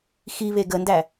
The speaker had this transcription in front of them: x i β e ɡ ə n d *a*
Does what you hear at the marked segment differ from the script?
yes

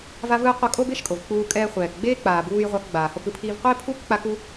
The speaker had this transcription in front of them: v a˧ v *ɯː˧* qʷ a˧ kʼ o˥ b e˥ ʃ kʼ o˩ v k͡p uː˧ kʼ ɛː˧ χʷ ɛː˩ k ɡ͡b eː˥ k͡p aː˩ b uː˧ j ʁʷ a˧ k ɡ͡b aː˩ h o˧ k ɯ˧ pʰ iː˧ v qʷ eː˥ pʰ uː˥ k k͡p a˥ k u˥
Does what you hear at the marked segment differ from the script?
no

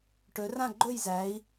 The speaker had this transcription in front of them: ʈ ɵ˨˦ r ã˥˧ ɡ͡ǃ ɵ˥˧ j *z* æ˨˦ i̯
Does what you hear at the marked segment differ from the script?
no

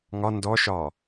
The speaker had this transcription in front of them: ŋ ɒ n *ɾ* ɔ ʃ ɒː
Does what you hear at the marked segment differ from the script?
yes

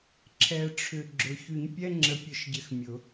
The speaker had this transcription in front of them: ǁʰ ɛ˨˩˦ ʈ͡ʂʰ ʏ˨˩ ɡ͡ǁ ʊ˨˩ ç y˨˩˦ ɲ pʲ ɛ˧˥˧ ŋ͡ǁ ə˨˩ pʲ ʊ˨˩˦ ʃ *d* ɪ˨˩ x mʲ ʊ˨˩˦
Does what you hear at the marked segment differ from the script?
yes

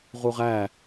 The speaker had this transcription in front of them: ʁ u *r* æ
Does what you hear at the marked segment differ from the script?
yes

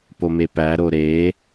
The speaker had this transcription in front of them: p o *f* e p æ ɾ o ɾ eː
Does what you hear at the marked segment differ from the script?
yes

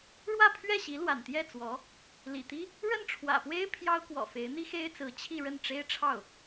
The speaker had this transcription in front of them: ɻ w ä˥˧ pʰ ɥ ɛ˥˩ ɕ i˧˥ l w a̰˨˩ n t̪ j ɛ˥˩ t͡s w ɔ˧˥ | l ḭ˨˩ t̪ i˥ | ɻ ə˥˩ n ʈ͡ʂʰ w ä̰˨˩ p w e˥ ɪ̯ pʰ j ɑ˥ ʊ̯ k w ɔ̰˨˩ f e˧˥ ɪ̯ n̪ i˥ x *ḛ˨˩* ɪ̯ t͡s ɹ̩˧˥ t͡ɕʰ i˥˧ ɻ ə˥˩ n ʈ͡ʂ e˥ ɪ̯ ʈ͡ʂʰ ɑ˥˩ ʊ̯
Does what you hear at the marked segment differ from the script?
yes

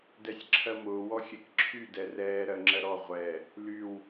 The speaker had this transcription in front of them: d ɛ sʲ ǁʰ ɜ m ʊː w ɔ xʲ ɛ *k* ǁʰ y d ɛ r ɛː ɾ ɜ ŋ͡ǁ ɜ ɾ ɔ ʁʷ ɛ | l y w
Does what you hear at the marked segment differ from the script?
no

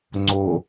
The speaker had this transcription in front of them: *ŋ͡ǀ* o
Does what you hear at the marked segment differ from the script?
no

